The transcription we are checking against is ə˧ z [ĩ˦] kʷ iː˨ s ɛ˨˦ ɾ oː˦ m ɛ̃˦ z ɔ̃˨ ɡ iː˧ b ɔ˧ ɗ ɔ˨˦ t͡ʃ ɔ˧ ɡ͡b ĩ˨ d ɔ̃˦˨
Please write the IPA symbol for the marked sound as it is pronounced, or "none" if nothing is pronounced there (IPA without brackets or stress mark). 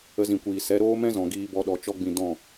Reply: ĩ˨